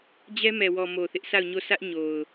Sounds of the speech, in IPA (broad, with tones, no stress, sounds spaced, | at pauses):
d͡ʑ ɛ˦ m ɛ˨ w ɔ˨ m o˨ θ ɪ˦ ʔ s a˦˨ ʊ̯ ɲ o˦˨ sʰ ä˦ ʔ ɲ o˨ ʊ̯